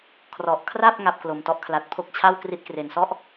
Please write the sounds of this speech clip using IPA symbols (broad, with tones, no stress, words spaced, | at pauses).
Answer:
kʰrɔ˨˩ʔkʰra˥˩p̚ ŋa˥˩p̚klo˨˩mtɔ˦˥ʔ kʰla˨˩t̚pʰo˦˥k̚t͡ɕʰa˥˩w kri˦˥t̚kre˨˩nsɔ˥˩ʔ